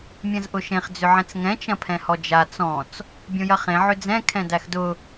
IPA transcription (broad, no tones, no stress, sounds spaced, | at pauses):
mʲ ɐ̃ z ʔ ʊ ʃ ẽ χ d͡z ʏ ʕ ɛ̃ t͡s ŋ ɛ̃ t͡ʃ ɐ̃ pʰ ɛ̃ h ɔ d͡ʒ a t͡s ɔ̃ t͡s | bʲ õ j ɐ χ ẽ ʕ ʏ d͡z ɛ̃ kʰ ɛ̃ d æ x d ʊ